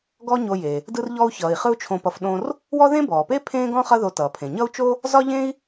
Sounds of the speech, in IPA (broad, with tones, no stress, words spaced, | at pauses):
ɡɔ˥ɲo˧je˩ | dɯ˧rʎɔ˧u̯çʌː˩i̯ χɯ˥u̯t͡ʃʰõ˧pʌ˧f ɗõ˧r | wɔ˥ ðẽ˥bɔː˩pe˥ pʰẽː˥ɡɔ̃˥ χʌ˥ðo˧tʌː˩pʰẽ˩ ɲʌ˥u̯t͡ʃo˥ | zɒ˥ʎẽ˥i̯